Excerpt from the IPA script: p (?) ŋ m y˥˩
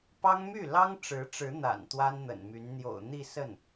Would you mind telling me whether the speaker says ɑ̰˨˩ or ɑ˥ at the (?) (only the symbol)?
ɑ˥